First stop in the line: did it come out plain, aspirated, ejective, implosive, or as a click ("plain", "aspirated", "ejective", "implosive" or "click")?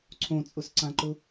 click